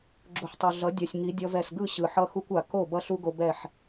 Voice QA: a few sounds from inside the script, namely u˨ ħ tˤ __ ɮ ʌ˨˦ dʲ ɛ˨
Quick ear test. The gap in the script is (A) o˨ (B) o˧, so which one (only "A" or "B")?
A